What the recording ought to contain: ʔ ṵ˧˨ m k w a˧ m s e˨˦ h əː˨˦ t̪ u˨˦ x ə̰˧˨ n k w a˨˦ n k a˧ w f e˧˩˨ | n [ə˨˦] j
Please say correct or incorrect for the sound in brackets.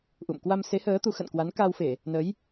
correct